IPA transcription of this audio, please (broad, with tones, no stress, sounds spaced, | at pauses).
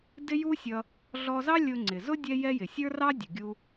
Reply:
d ɪ˥ j u˥ sʲ ʌ˧ | ɮ ɔ˧ z ɑ˥ lʲ ʊ˧ ŋ͡ǀ ɪ˩ z ʊ˥ dʲ ɛ˥ j ɛ˥ j ɪ˩ sʲ ə˞˥ r ɑ˥ dʲ ʊ˩ ɡʲ u˧